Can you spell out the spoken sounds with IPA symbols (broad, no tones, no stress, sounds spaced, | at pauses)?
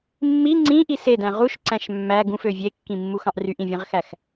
mː i ŋ͡ǀ ĩ ʔ i s e d æ̃ ʁ u ʃ ǀ æ̃ ʃ mː æ ɡ ũ f ø vʲ e kː ĩ mː u x ɑ̃ ʔ r y ʔ ĩ vʲ ẽ ʁ x æ x